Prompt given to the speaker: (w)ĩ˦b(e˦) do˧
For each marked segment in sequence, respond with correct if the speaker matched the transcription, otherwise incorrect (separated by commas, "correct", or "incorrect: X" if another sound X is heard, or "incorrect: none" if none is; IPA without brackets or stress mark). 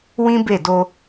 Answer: correct, incorrect: e˦˨